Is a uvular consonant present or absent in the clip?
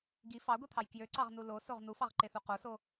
present